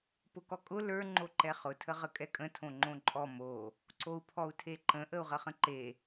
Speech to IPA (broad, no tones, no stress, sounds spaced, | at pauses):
p ʊ k ɔ kʼ ʊ l ə˞ ŋ͡ǃ o ǃ ɛ χ ʊ tʰ ə ʁ ə kʼ ɛ kʼ ə̃ tʰ õ ŋ͡ǃ õ ǃʼ ɔ m o | ǀ o u̯ pʰ ɔ u̯ tʰ e ǃ ə̃ ʔ ə u̯ ʁ ə χ ə̃ ǃ e